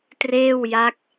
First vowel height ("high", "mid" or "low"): mid